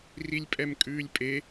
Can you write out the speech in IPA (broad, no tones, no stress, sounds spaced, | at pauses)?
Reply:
r i lʲ pʼ ɛ m kʼ ʉː lʲ pʼ e